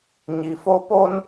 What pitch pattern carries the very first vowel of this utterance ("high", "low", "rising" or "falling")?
low